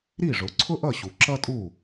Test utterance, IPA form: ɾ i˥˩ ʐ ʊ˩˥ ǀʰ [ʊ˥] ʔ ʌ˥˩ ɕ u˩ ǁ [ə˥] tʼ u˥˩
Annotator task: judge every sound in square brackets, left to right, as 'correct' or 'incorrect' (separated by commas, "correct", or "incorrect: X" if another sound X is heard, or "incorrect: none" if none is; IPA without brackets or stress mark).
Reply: correct, incorrect: ʌ˥